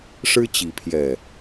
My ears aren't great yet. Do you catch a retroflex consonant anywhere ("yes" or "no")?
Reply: yes